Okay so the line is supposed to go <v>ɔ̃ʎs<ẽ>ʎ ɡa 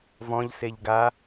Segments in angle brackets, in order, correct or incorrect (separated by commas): correct, incorrect